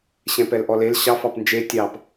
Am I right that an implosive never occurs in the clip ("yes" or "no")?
yes